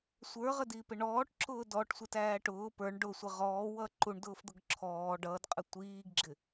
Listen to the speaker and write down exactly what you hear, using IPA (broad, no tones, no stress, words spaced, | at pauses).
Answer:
sʷə˞ʁədiːpɪ ɳɔːʈǁʊː dɔʈsʷɪtæː ʈʊː pə˞ɳ ɖʊsʷɪ ʁɔːwʌ ǃuɳdʊːfd̪ʊɡ ǁʰɔː ɖʌːdqʼə tʷiːɡɡ͡ǁɪ